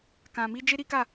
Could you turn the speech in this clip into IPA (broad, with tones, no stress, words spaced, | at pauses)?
kã˨mi˧ d͡ʒe˦ɾi˦ka˦˨